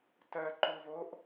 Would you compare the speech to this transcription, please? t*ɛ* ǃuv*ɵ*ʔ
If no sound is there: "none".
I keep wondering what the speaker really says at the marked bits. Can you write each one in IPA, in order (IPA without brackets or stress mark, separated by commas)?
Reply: ɜ, o